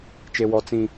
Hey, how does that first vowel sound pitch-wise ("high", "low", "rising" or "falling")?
high